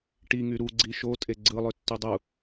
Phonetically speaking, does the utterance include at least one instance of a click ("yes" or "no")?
yes